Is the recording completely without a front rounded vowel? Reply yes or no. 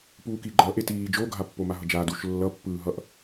yes